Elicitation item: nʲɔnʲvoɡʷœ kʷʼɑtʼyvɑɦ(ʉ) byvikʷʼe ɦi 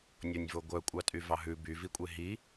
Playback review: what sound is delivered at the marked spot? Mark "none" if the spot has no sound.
ʉ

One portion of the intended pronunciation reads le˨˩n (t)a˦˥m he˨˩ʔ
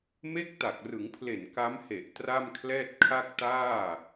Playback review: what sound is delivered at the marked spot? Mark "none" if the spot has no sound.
k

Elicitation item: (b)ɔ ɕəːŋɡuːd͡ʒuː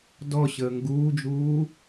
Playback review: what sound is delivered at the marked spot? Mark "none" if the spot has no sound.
d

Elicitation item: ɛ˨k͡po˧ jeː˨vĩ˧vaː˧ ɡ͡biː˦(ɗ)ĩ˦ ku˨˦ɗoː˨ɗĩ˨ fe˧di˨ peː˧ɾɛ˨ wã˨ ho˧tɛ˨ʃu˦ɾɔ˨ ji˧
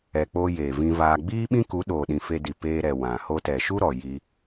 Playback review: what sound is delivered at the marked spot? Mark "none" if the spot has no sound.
ɓ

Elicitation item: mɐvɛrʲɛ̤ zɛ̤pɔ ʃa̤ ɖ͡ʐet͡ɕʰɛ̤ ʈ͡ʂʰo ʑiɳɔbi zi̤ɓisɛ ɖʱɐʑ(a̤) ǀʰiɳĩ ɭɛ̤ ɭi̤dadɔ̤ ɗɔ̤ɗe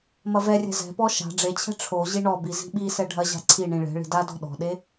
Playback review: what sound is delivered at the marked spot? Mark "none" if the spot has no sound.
a̤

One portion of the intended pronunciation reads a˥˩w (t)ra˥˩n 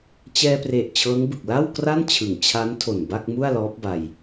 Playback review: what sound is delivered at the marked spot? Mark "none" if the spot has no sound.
k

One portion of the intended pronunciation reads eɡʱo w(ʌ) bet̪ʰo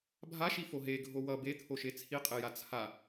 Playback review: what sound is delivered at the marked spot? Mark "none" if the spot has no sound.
ʌ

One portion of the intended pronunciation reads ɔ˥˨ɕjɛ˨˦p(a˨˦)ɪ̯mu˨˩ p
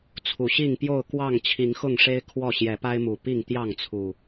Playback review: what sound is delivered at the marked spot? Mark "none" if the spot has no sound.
a˦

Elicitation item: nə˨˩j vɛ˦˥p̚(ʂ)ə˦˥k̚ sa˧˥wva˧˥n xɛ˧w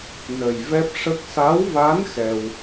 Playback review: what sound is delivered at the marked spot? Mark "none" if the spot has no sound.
ʂ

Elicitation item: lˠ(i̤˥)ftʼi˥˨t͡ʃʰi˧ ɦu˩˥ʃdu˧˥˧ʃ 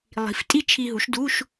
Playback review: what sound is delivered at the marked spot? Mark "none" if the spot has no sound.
i̤˩˥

